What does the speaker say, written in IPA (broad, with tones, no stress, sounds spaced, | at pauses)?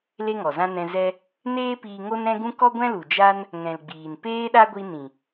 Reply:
l e˦ ŋ ɔ˨ z ã˦ n ɛ̃˧ z ɛ˧ | n eː˦ p iː˧ ŋ o˦ n ɾ ɛ̃˦ ɡ ũ˦ k ɔ˦ ɡʷ ɛ̃˦ l u˨ d͡ʒ a˦ n | ŋ ɛ̃˨ l ɡ͡b iː˨ n p eː˦ ɗ a˦ ɡʷ i˧ n ĩ˨